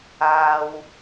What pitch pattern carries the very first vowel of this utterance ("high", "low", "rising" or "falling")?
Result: low